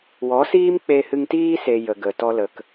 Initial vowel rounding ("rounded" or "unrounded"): rounded